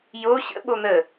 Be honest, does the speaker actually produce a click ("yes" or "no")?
no